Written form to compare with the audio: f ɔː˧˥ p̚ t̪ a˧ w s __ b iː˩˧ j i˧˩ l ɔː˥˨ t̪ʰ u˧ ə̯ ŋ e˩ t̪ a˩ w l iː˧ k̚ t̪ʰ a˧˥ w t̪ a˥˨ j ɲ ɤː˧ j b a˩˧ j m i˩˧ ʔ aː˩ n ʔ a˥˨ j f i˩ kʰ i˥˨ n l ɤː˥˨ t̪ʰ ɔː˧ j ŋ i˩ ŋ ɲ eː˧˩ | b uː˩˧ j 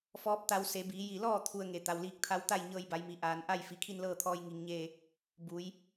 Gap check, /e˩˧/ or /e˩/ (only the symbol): e˩˧